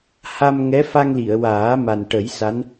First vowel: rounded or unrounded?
unrounded